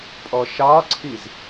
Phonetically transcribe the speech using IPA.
pʼɔʃɑǀʰiz

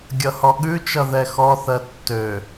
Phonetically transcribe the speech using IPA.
ɡʲʌhɔɠʉt͡ʃʌ ðɛxɔθɜ tːø

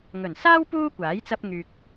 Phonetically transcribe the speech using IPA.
ŋɵ˨˩nsaː˥w puː˥kʷaː˨˥j t͡sɐ˥p̚ŋyː˧k̚

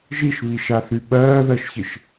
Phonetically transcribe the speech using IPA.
ʒiʃβiʃaθy ɓɜːðɜʃçɪʃ

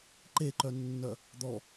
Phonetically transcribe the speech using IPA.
ǃeǃœnːœ | d̪ɔ

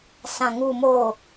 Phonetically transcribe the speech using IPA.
sã˨ŋuː˨moː˨

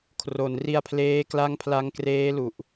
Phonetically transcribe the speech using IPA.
kʰro˩˦n ri˧a̯pʰleː˦˥kla˦˥ŋ pʰla˦˥ŋ kreː˦˥lu˨˩ʔ

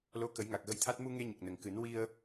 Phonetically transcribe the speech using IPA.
lo˧˥kə˨˩˦j ŋa˨˩k̚ɣə˧jt̪ʰa˦˥t̚ mu˧ŋe˧ɲə˨˩k̚ nə˨˩ŋkɨ˨˩˦n wi˧ə̯

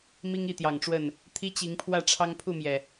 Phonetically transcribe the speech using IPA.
mi˦ŋi˥˨t̪jɑ˨˩ŋʈ͡ʂwə˥˨n | t̪ʰi˦t͡ɕi˨˦ŋpʰwä˥˨ʈ͡ʂʰɑ˦ŋ pʰu˥˨mjɛ˩

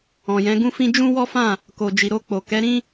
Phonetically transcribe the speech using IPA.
ɔ̃˨jɛ̃˨˦ɡũ˦fĩ˦ d͡ʒũ˦wɔ˦fã˦˨ | ko˨d͡ʒi˨ɾo˧k͡po˨ kɛ˨˦ɾĩ˦

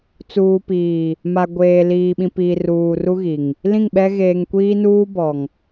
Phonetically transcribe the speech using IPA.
t͡suː˨piː˨ | ma˨ɡʷeː˨ liː˨ɓĩ˨piː˨r uː˨ru˦ɣi˨ŋ | lĩ˦˨ŋɓɛ˦ ɣeː˨ŋkʷiː˦nuː˦ bɔ˨ŋ

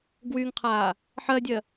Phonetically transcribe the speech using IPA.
ɡwyŋqʰaː | ħɜdʲɜ

